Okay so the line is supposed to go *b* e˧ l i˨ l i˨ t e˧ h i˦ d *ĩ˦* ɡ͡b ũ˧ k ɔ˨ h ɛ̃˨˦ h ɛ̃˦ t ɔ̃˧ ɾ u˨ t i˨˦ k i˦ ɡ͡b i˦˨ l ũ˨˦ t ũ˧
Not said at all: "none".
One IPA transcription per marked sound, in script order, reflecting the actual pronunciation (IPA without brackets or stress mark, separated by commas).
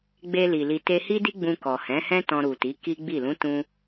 ɡ͡b, i˦